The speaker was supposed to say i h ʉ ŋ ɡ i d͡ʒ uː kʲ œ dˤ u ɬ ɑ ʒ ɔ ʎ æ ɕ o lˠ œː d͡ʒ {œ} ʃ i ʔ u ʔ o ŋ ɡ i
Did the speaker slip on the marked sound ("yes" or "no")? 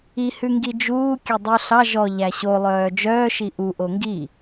yes